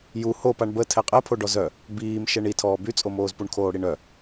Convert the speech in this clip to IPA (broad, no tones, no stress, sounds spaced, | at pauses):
j u h o p a ɳ b ə tʰ ɛ qʼ ɛ pʰ o ɖ ɔ z œ | b iː m ʃ ɛ ɳ i tʰ ɔː b y t͡sʼ o m oː z p u ɳ kʰ oː ɽ i ɳ œ